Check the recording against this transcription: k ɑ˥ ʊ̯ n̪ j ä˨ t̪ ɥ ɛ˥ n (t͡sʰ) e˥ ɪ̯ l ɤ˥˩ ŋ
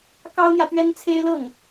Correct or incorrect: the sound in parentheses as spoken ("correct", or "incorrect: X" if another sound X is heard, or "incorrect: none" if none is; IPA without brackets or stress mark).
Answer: correct